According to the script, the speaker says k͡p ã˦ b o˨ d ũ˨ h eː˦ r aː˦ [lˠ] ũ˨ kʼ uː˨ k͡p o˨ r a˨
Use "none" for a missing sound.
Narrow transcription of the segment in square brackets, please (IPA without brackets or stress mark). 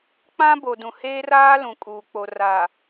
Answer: l